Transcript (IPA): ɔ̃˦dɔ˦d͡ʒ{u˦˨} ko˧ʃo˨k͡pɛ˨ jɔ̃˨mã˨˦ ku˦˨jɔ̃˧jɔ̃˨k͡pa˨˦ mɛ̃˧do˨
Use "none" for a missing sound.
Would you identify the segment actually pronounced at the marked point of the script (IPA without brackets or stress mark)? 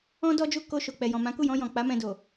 u˦˨